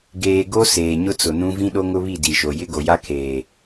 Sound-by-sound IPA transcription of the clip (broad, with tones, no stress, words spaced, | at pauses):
ɡeː˨ɡo˦ seː˨ɲʊ˦t͡sʊ˨nũ˦ vĩ˦ɗo˦ŋʊ˦βi˦˨ di˨ʃo˨ jɪ˦ɡo˨ja˦ kʰeː˨